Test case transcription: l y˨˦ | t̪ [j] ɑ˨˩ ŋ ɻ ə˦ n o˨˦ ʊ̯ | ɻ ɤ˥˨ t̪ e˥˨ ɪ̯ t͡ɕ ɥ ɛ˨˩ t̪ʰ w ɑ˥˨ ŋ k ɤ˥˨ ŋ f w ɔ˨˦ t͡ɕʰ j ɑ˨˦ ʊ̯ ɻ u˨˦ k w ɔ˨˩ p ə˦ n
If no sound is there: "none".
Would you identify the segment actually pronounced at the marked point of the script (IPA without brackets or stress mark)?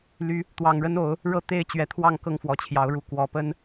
w